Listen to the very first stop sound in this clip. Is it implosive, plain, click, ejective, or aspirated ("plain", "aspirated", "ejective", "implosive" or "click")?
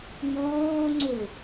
click